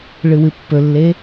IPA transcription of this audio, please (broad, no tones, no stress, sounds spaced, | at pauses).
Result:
ɭ ɨ w ɨ pː ɵ lː e